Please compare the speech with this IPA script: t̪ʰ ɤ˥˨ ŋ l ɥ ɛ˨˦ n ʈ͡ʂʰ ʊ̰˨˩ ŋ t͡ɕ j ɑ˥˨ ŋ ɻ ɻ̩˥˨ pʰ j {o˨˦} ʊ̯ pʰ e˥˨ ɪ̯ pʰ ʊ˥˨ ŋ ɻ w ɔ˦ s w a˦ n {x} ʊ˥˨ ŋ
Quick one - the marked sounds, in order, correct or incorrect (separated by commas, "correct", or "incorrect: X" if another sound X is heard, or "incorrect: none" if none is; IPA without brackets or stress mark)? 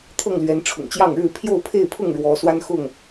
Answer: incorrect: o˥˨, correct